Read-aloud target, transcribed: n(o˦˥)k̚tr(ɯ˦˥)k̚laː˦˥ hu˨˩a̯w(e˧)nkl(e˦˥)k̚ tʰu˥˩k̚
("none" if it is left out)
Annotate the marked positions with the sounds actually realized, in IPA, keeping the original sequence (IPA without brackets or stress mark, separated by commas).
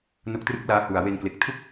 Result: o˦˥, ɯ˦˥, e˧, e˨˩